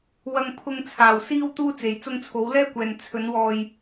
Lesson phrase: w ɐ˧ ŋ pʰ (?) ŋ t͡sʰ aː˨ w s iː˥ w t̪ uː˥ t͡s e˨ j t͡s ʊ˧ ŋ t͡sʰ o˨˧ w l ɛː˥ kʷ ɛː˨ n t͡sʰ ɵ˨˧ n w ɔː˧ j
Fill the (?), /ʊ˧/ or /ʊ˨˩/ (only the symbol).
ʊ˧